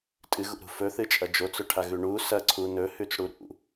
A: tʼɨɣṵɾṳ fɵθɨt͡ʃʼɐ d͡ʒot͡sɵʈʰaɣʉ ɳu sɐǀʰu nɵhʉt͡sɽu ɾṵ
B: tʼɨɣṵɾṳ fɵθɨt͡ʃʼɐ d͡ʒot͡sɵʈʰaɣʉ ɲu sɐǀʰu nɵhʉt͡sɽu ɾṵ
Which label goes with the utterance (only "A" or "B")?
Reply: A